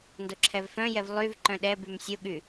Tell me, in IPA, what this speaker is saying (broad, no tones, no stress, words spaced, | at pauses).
ndoǁʰɛvfœ̃jɛv lˠyv ǃœ̃ɗɛbym sʲoɠy